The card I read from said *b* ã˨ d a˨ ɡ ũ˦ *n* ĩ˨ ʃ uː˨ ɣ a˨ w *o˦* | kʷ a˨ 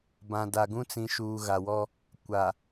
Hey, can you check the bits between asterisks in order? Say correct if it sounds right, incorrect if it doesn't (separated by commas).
correct, incorrect, incorrect